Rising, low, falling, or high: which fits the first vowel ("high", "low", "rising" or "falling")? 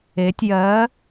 rising